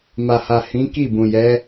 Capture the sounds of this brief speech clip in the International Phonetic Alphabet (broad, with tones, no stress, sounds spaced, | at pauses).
m a˨ h a˨ h ĩ˨˦ k i˦˨ b ũ˨ j ɛ˨˦